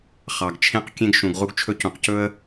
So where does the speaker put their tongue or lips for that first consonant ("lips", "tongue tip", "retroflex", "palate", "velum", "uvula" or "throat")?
uvula